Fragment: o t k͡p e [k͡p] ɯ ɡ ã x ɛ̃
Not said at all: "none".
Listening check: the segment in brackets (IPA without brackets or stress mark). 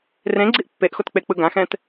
k͡p